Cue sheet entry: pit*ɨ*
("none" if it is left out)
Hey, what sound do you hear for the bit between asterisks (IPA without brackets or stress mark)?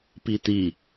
i